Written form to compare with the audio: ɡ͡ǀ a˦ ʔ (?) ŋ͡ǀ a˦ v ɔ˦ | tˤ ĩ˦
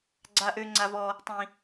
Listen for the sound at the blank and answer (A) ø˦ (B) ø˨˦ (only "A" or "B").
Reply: A